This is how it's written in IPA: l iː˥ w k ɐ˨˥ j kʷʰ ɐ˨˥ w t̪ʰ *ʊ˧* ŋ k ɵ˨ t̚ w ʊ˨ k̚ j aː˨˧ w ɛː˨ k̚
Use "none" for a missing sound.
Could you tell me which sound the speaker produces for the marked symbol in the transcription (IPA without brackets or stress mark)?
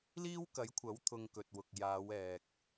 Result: ʊ˧